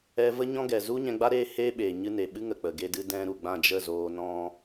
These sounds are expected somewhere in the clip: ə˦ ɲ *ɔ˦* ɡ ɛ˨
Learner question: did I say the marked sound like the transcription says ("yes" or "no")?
no